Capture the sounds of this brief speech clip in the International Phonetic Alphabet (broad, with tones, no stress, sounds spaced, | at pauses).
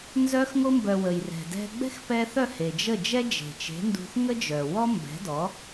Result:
n z œ˧ x ŋ o˧ m b œ˩ w ə˩ j r ɛ̤˩ d ɛ̤˧ ɡ͡b ɛ̤˥ x p ɛ˧ θ œ˥˩ h e˩ d͡ʒ ə˥˩ d͡ʒ ɛ˥ d͡ʒ e̤˩ t͡ʃ e̤˩˥ n d ṳ˧ θ ŋ ə˥ d͡ʒ œ˩ w ɔ˥ m b ɛ̤˩˥ d ɔ˩˥